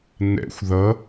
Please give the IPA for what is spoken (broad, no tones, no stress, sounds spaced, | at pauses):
n ɛ̰ xʷ ð ʌ